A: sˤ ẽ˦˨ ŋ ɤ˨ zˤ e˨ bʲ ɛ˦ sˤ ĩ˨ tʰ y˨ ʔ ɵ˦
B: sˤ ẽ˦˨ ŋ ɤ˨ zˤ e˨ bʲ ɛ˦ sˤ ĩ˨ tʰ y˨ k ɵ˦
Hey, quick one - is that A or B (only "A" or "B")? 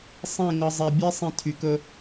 B